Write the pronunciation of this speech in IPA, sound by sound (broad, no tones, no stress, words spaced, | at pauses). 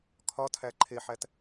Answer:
kʰɒtʰæ ǃʰeħæt